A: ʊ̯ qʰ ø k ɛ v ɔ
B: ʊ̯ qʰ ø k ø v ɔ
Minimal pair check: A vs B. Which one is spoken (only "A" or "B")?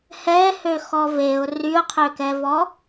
A